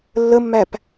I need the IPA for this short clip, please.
lː ə mː æ p

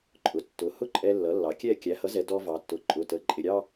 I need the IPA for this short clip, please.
ǃʼ ʊ˩˧˩ tː ʊ˩˧ h ʊ˥˧ ǃʼ ɛ˧ lː ʌ˩˥ lː ɑ˩˥ kʲ ɛ˥˧ kʲ æ˩˥ h ʌ˩˥ z ɛ˩˧ d ɔ˧ v ɑ˩˧ tː ʊ˩˧ ǃʼ ʊ˩˧˩ t ə˩˧ ǃʼ ɪ˩˧˩ ɾʲ ɑ˥˧

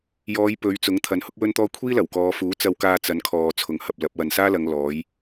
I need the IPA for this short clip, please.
j ɔː˨˧ j p ɵ˨˧ ɥ t͡s ʊ˨˥ ŋ t̪ʰ ɐ˨˧ n h ʊ˥ k̚ w ɵ˥ n t̪ ɔː˥ kʷʰ iː˥ l ɐ˨˩ w k ɔː˨˧ f uː˨˥ t͡s ɐ˧ w k aː˧ t͡s ɐ˨˧ n kʰ ɔː˨ t͡sʰ ʊ˨ ŋ h ɐ˧ p̚ l ɐ˨˥ p̚ w ɐ˨ n s aː˥ l ɐ˨˧ ŋ l ɔː˨˥ j

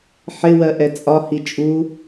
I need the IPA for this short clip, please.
ħ ɪ w ɜ ʔ ɛ t͡sʼ ɒ h i t͡ʃʼ u

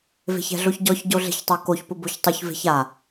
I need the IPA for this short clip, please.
v e̤ ç ɛ̤ ɮ o ç ɟ ɔ ç ɟ o ɮ e̤ ç tˤ ɛ k o ç p ʊ b o ç tˤ ʊ ç v e̤ ç a

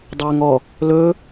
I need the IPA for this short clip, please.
dˤ ɵː ŋ ɔ | l ɵ

